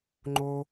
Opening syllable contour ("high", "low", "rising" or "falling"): high